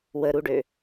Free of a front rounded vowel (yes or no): no